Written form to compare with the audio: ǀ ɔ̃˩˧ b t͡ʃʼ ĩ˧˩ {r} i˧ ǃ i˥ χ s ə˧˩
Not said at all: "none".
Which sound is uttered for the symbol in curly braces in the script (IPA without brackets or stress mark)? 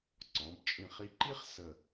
χ